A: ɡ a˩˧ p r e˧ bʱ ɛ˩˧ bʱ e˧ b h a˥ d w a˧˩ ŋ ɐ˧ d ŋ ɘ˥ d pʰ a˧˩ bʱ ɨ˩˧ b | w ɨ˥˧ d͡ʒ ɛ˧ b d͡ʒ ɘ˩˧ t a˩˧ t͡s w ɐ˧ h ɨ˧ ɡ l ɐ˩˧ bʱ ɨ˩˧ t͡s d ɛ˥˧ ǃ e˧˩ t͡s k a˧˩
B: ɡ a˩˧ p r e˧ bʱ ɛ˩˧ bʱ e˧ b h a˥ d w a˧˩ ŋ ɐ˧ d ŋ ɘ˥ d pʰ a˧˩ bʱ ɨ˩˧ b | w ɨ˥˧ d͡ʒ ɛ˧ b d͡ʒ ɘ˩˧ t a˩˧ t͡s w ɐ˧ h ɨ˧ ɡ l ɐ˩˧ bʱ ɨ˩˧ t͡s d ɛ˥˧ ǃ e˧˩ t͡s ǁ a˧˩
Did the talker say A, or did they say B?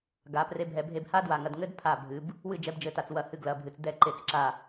B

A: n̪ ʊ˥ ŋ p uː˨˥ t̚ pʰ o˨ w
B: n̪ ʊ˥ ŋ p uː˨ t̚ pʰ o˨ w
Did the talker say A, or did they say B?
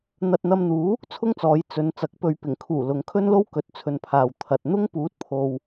A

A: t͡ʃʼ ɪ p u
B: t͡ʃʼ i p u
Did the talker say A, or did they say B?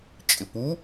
A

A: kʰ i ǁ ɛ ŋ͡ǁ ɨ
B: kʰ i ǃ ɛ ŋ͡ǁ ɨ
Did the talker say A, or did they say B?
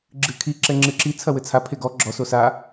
A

